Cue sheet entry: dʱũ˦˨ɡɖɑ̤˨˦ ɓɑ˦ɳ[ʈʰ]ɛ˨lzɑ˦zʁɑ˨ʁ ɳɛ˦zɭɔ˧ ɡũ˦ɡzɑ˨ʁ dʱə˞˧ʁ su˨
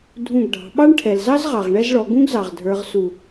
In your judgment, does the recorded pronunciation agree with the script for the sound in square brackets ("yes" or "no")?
yes